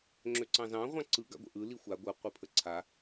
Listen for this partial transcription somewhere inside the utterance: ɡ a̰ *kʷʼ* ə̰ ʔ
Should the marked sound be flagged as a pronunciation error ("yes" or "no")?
yes